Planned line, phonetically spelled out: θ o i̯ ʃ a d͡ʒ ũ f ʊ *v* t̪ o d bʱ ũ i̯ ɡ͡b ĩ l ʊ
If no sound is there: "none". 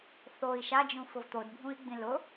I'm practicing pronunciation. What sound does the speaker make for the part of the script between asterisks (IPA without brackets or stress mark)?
v